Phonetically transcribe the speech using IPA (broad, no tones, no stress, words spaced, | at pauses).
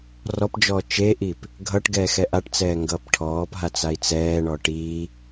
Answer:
rɔpd͡ʒɔː t͡ʃeʔip | ɡʱʌʈɡɛː xɛʔaʈt͡sɛː ŋɡʌːpʈʰɔːpɦa t͡sai̯t͡sɛːɳɔ ʈiː